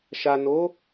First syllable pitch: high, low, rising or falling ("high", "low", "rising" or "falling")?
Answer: low